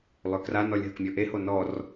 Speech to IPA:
lˠøkranɔlʲ ɦəkmʲɔʔeho nɔr

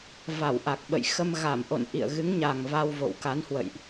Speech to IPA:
va˧˩wʔa˨˩k̚ɓə̰˧˨j xə˧m ɣa˧˩m ʔo̰˧˨nʔḭ˧˨ə̯ ɣɨ˨˦ŋɲa˨˩ŋ va˧wvo̰˧˨wka˨˦n hwə̰˧˨jʔ

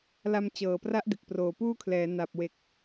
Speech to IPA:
la˧m t͡ɕɤː˨˩pra˦˥ʔ de˨˩k̚proː˨˩puː˥˩kʰlɛː˩˦ na˨˩p̚we˨˩k̚

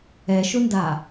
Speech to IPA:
ɛʃʊnda

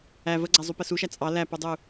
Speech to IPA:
æ vəɡ͡ǀæzˤupə suʃæ t͡sʼɑ læpudˤu

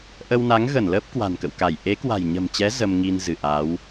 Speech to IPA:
ʔə˧wna˨˦ŋɣə˧˩nləː˦˥p̚ kwa̤˨˩nkə̰˧˨wka˧˩j ʔe˨˦kwa̤˨˩jɲə̤˨˩mt͡ɕɛ˨˦ zə˧mŋi˧n zɨ˧˩ʔaː˨˦w

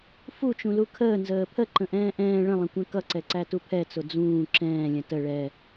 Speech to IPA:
fut͡ʃũlu kʰəː nzəːpʰə ǃə̃ʔɛ̃ːʔɛ̃ː ɭə̃lˠə̃kʷɛ̃ kʌǀɛǀætu pʰɛt͡sʊ d͡zũː ǁɛ̃ːlʲə̃ tə ɭɛ

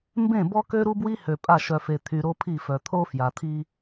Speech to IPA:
mbẽ˦˨bɔ˦ kø˦ɾu˦bwi˦ hø˨pʼa˦˨ ʃœ˨fe˨ t̪ʰy˨ɾo˦pʰi˦˨fœ˨ t̪ʰo˦fja˨t̪ʰi˦

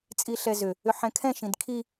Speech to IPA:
t͡sʼiɬɛzʏ | ʏħɛ̃kʰɛ̃ ʃĩdkʰi

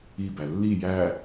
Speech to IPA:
ibæ lːi jæ

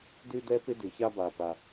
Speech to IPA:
dʉ˥dɛ˥pɪ˥ dʉ˩ça˥ba˩pa˩

